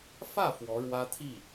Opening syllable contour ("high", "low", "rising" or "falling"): falling